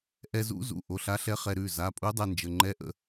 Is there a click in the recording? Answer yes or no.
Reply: yes